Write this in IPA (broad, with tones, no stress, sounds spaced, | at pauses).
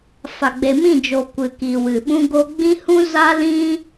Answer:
f a˨ ɡ͡b e˨ m ĩ˦˨ d͡ʒ o˨ kʷ ɨ˨ k i˨ w ɨ˨ ɓ ũ˧ ɡ o˧ ɡ͡b ĩ˦ h ũ˦ z a˦ l ĩ˦